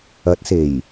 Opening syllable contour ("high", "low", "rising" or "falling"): rising